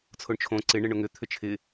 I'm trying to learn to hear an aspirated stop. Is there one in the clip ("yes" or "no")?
yes